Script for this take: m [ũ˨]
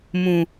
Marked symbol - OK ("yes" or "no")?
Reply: yes